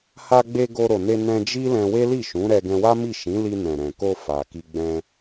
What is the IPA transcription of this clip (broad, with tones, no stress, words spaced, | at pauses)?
ha˧ɡ͡be˧ ɡo˧ɾo˨ne˧ nɛ̃˧d͡ʒi˦ lɛ̃˧we˦li˦˨ ʃũ˨˦ɾɛ˧ ɡɛ̃˧wa˦mi˦˨ ʃĩ˨˦li˧nɛ̃˨ ɾɛ̃˨ko˧ fa˨ki˧ ɡ͡bɛ̃˧